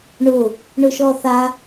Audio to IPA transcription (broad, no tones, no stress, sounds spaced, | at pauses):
ɳ ʊ | ɳ ʊ ʃ ɔ θ a